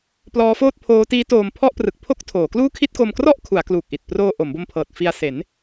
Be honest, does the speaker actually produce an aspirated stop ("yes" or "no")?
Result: yes